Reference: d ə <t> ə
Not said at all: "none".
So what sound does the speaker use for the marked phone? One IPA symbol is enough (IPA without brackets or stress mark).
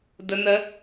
n